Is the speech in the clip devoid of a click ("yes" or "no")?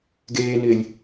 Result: yes